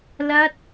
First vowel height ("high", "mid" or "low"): low